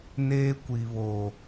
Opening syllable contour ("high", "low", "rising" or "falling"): high